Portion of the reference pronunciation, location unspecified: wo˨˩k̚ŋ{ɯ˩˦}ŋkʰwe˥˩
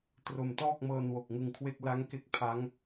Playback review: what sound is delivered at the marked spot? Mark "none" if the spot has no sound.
ɯ˧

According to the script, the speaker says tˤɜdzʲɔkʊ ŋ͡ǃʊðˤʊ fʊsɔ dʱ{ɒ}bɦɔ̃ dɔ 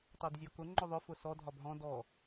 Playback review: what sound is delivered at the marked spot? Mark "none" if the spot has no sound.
ɒ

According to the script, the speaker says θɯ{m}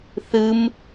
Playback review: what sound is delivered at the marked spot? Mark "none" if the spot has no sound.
m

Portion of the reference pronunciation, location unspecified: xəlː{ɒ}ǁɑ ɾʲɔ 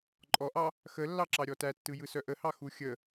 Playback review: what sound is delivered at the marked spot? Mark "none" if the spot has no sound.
ɑ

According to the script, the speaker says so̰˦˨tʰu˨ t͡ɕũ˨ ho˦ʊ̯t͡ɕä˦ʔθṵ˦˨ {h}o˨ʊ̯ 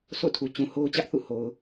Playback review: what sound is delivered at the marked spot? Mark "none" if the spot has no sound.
h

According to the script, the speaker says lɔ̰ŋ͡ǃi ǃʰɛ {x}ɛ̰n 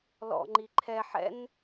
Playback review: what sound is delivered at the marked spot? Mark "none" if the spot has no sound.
ħ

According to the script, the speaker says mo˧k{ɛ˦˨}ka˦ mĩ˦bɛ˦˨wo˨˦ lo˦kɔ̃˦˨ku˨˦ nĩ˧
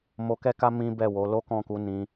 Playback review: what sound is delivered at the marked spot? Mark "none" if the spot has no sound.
ɛ˦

